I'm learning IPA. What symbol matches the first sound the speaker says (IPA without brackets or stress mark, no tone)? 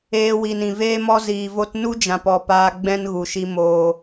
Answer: eː